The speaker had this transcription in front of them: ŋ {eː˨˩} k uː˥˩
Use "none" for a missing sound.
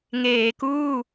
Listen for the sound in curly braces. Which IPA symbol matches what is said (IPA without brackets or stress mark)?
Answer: eː˩˦